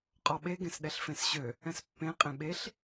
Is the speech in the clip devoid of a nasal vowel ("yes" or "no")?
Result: no